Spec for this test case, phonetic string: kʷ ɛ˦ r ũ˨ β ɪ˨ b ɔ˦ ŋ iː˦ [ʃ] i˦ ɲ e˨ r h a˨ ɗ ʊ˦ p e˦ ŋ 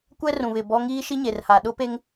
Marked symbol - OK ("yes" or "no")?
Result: yes